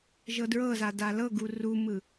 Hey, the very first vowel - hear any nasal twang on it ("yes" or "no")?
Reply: no